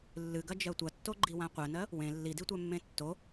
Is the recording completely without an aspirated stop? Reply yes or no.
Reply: yes